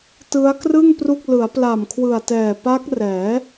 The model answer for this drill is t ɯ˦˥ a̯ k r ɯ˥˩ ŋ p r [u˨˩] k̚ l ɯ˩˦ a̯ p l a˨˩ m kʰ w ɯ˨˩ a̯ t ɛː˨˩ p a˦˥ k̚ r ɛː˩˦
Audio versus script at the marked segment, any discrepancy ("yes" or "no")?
yes